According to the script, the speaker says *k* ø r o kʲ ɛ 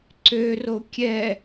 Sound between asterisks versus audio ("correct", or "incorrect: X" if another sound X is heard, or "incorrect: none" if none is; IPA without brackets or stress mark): incorrect: ǀ